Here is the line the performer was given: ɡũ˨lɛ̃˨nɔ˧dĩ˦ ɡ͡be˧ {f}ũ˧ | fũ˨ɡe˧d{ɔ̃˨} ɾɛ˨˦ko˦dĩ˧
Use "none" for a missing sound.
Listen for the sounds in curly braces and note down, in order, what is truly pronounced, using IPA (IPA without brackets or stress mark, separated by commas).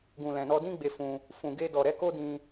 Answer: f, ɔ˨